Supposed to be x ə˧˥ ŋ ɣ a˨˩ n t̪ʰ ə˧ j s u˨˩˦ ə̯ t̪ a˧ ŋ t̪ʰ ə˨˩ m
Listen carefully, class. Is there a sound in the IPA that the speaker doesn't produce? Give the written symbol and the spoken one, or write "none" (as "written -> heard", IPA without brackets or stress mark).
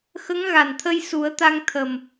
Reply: none